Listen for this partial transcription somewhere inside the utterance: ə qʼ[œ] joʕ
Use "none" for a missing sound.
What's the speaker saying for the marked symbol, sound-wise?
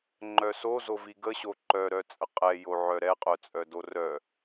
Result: ɛ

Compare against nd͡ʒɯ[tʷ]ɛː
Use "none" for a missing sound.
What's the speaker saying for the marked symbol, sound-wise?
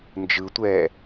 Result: tʷ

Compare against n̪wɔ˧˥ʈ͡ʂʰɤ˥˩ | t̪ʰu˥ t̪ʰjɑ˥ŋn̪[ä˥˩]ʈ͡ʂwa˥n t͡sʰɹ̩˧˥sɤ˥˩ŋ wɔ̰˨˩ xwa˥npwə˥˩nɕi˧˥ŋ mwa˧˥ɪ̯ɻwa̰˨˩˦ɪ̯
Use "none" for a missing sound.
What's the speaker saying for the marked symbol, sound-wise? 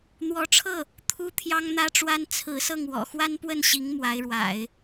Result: ä˥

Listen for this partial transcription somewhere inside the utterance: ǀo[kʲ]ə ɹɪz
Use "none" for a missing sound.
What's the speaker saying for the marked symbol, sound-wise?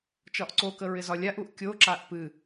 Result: k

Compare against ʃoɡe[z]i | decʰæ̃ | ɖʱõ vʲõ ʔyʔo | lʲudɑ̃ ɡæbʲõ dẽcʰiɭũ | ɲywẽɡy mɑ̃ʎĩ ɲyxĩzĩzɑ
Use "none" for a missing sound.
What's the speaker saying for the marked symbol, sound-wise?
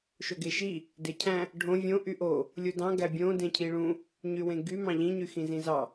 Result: ʃ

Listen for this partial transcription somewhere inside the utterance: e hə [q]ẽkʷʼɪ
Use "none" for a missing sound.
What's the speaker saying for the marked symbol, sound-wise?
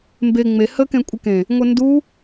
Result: k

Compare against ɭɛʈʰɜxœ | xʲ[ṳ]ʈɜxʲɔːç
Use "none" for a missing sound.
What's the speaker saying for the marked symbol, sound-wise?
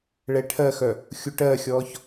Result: u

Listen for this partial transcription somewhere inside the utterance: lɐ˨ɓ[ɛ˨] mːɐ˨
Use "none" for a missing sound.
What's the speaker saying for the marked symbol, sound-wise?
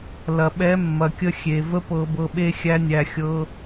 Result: ɛ˨˦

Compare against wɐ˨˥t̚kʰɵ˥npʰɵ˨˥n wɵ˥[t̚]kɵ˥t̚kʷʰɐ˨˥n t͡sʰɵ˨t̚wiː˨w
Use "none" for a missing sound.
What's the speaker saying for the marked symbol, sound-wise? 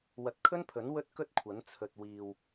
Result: t̚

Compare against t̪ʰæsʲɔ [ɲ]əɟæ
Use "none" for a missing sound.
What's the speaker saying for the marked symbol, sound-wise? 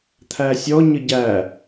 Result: ɲ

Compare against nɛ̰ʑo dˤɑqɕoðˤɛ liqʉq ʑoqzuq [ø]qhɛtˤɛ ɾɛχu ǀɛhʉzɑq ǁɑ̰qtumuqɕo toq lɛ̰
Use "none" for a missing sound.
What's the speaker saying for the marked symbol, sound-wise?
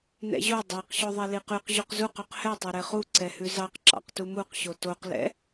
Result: ø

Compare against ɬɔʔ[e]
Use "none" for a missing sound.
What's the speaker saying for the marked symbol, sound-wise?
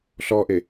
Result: e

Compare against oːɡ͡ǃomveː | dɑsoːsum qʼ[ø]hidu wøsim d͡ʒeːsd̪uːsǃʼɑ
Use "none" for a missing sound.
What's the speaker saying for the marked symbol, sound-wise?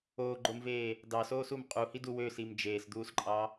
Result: u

